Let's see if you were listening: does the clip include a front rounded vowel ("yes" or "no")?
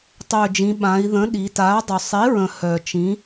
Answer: yes